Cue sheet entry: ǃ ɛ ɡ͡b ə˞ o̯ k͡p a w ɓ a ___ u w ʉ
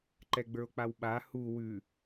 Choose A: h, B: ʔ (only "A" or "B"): A